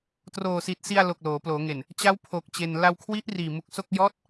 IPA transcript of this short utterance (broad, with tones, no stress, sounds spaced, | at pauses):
t r oː˨˩ s i˨˩ t̚ s i˧ a̯ l o˨˩ k̚ l oː˩˦ p l oː˩˦ ŋ e˨˩ n | t͡ɕ a˦˥ w pʰ o˨˩ k̚ t͡ɕ e˧ n l a˧ w kʰ w i˦˥ ʔ r iː˨˩ m u˨˩ k̚ s o˥˩ k̚ j ɔː˦˥ t̚